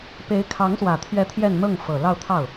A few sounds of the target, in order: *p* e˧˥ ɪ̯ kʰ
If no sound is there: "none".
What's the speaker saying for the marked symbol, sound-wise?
p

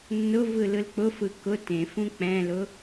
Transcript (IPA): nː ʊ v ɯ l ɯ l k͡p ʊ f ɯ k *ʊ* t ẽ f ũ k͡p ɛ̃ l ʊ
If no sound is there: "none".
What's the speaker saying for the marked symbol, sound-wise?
ʊ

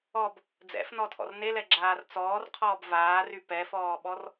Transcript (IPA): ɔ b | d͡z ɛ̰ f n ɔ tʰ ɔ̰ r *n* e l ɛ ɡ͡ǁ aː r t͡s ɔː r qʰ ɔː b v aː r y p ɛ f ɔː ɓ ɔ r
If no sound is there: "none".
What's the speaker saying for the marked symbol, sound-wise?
n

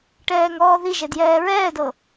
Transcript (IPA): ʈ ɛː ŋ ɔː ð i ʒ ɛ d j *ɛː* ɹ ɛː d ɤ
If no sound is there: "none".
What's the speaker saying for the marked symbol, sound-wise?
ɛː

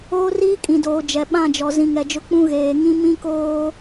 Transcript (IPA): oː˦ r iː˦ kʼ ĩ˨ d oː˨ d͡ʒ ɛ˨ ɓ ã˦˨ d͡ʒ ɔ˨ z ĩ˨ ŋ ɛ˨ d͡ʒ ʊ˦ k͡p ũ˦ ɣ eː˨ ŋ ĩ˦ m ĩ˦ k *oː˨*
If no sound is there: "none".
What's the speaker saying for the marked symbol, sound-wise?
oː˦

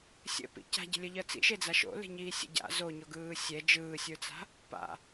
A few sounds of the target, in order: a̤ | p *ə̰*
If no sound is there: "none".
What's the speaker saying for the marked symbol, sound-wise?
a̰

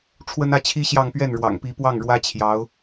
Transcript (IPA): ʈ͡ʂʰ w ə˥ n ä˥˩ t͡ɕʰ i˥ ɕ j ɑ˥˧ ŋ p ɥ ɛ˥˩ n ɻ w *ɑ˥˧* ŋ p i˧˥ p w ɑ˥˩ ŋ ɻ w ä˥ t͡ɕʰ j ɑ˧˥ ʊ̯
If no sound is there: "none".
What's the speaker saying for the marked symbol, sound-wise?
ɑ̰˨˩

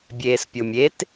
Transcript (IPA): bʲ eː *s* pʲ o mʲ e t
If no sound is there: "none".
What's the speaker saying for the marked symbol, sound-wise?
s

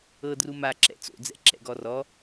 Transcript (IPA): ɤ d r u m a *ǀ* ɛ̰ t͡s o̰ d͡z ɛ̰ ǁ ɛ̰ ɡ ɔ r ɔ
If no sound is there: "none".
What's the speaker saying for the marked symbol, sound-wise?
ǁ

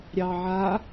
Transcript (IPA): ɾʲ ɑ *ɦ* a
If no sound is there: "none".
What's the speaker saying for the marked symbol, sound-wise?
ʕ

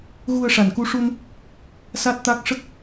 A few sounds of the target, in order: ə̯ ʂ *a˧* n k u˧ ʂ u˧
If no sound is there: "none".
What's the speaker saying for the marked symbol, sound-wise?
a˨˩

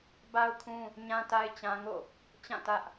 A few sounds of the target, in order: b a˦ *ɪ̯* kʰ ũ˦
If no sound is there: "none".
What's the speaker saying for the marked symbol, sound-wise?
ʊ̯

